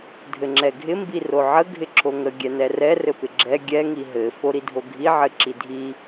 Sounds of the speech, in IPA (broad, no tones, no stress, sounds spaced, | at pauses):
dʱ ɘ ŋ͡ǁ ɛ ɡʱ ɪ m b i r o ʕ ə ɡʱ ɪ ǁʰ o ŋ ə ɡʲ ɛ n ɛ r ɛ r ɘ p ɪ ɡ͡ǁ ɛ ɡʲ ɛ ŋ i ɦ ɘ f o ɾ i dʱ o ɡʱ i ʕ ɘ ǁ i dʱ i